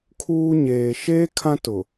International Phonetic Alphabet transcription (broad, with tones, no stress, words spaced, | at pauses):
kʰuː˦ ɲeː˨ʃeː˦ kʰã˦tʊ˨